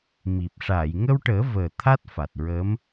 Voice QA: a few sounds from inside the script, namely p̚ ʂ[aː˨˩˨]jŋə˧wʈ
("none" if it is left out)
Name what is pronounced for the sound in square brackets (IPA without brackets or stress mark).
aː˨˩˨